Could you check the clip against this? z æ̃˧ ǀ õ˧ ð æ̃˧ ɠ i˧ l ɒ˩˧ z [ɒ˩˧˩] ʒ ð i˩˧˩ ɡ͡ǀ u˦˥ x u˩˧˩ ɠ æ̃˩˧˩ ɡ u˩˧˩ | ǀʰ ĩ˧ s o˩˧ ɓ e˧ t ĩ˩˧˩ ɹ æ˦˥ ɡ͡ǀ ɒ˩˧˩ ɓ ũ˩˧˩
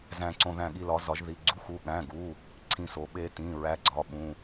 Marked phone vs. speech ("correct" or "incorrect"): incorrect